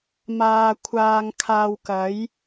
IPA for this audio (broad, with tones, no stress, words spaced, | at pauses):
maː˧kʷʰaː˧ŋ kʰaː˧wkɐ˨˥j